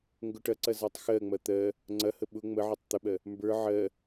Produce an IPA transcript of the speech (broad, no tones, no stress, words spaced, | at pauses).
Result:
ŋɡʊʈɐǀɐ zɜtˤxɜŋ͡mɐ t̪ɜ | ŋ͡ǀɐhə ɓʊ ŋ͡məʕotˤ t̪əɓɜ | mbə˞ ʕɜ